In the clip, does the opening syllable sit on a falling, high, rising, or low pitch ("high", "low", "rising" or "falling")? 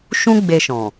high